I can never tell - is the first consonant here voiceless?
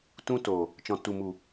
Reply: yes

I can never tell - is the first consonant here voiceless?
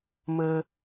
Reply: no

